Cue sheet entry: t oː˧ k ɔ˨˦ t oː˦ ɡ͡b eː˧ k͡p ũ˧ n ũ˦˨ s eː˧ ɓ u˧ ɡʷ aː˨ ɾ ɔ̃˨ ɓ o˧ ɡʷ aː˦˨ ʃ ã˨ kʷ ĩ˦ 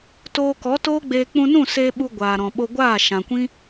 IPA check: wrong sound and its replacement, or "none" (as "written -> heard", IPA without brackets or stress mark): none